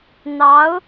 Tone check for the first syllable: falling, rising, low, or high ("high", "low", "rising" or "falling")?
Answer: rising